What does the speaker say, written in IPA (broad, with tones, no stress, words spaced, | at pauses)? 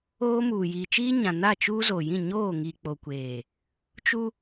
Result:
oː˦ muː˨jiː˨t͡ʃiː˦ɲã˨ na˦˨t͡ʃuː˦zo˨jĩ˦˨ ɲoː˦˨ŋi˨k͡po˨kʷeː˨ | t͡ʃu˦